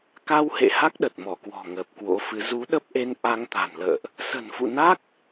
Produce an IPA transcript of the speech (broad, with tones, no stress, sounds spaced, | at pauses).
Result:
k a˧ w h ḛ˧˨ h a˦˥ k̚ ɗ ə˨˩ t̚ m ɔ˧˩ k w ɔ̤˨˩ ŋ əː˨˩ p̚ k w o̰˧˥ f ɨ˨˦ z u˨˦ ɗ ə˦˥ p̚ ʔ e˧ n ʔ a˧ ŋ t̪ a̤˨˩ n l ə̰ː˧˨ ʔ | s ə̤˨˩ n f ṵ˧˨ n a˦˥ k̚